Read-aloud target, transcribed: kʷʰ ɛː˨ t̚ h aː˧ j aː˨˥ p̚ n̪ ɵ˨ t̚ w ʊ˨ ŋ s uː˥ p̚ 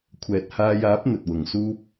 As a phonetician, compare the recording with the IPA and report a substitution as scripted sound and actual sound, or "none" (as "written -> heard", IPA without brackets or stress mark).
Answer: none